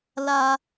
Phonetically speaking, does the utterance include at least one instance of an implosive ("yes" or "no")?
no